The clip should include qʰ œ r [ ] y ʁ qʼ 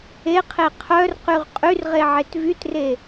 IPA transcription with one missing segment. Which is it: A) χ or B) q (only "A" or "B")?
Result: B